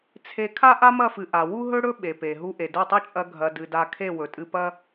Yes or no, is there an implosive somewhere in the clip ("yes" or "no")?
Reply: yes